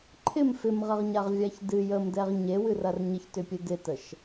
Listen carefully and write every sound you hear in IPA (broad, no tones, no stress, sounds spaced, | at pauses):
ǃʰ ɪ m f ɪ m ʁ ɐ ʁ ɲ a ʁ vʲ a ç d ɨ j ə m d ɛ ʁ ɲ e w ɨ r ɐ r ɲ ə ç t ʏ pʲ ɨ d ɪ t ə ʃ